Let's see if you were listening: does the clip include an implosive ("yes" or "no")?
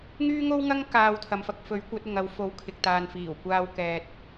no